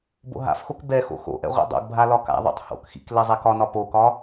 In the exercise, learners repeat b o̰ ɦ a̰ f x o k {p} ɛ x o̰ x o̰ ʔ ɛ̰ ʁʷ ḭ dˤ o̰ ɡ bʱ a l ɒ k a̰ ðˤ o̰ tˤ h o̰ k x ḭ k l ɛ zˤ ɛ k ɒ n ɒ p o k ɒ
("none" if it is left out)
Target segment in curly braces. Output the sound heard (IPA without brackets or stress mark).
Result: b